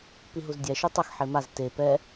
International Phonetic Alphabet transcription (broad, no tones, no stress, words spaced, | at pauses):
piɦuzdʲɛ ʃutˤʌx ħemaz te pɛ